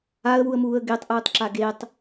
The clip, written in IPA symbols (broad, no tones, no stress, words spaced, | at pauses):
aə̯wuə̯muːə̯ ɡetˤʔɯːtˤǁa ɡetˤ